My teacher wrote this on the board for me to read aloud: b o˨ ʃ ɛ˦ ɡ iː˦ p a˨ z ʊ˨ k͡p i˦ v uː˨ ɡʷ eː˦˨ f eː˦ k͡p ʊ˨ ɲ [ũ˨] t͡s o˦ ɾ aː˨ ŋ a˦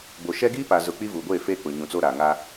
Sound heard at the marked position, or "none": ũ˨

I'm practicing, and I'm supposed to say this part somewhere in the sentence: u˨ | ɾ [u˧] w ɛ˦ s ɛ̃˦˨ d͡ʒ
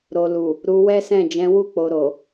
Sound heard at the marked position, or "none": u˧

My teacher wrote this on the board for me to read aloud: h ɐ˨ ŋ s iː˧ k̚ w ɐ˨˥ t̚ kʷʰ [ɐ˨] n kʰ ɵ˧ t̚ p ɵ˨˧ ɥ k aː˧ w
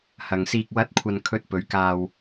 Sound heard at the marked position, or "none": ɐ˨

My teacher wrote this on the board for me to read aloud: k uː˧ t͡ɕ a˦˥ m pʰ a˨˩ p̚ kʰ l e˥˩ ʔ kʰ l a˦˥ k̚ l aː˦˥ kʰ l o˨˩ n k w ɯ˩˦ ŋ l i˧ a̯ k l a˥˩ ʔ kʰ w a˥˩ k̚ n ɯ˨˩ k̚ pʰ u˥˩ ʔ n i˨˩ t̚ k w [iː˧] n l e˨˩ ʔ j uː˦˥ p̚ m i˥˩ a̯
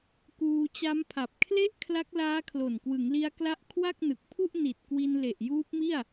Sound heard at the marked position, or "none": i˧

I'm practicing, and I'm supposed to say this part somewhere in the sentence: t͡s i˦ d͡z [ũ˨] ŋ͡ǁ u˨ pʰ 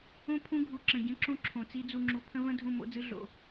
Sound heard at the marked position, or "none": u˨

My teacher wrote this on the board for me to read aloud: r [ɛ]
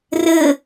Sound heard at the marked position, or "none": ɘ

